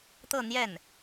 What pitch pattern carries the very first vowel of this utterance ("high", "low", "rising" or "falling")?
falling